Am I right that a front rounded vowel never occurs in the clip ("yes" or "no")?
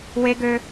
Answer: no